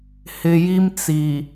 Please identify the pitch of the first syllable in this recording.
low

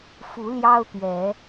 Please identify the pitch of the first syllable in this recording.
rising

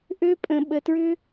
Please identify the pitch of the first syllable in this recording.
high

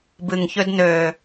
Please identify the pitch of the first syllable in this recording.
low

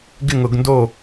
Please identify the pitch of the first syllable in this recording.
falling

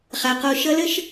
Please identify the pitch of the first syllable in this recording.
high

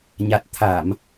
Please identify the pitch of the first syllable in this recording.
low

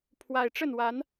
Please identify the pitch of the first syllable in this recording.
low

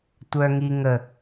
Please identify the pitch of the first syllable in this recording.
high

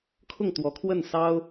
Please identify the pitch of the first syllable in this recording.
falling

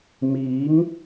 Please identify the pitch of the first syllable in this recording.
rising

